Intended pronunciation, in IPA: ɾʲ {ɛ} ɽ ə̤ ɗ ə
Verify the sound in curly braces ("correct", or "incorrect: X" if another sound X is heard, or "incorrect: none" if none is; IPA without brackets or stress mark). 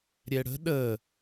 correct